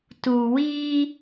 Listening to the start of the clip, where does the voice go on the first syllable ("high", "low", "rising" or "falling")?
low